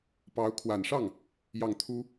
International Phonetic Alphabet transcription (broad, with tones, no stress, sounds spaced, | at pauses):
p ɑ˧˥ ʊ̯ kʰ w a˨˩ n ʂ ɑ˥˩ ŋ | j ɑ˥˩ ŋ t̪ʰ u˥